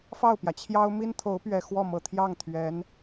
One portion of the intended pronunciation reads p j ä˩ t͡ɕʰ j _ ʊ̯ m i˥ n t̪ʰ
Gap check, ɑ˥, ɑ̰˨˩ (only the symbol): ɑ˥